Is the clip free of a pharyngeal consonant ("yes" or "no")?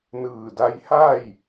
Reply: yes